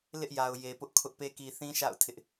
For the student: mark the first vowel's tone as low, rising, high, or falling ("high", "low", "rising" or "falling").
high